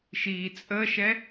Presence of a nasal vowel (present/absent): absent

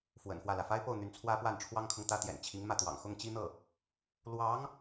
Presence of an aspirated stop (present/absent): present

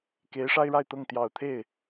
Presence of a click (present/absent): absent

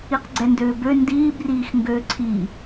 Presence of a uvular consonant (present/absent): present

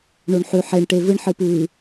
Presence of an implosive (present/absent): absent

